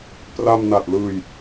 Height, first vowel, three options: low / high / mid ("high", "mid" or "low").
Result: low